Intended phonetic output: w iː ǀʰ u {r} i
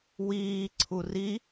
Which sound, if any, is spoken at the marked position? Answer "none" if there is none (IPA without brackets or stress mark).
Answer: r